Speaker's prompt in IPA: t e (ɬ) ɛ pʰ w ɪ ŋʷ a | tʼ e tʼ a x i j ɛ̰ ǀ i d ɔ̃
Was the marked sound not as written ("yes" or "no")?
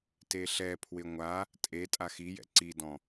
no